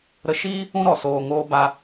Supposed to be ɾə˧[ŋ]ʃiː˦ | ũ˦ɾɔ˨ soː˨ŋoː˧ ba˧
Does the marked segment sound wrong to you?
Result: yes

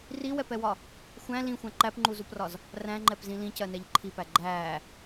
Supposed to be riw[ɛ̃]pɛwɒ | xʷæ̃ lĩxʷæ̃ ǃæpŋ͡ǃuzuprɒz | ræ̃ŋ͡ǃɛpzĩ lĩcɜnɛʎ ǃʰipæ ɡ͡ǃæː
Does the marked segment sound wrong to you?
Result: yes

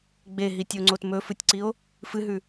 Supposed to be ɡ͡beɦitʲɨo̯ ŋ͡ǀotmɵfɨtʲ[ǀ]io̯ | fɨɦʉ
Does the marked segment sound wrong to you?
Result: no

